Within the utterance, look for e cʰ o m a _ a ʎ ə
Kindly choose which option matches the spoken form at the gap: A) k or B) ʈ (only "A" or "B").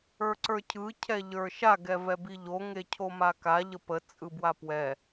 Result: A